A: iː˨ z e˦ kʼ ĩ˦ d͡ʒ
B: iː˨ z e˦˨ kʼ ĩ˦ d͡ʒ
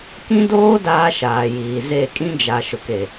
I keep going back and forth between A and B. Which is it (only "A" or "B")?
B